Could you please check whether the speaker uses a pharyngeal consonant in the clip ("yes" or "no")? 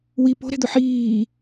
yes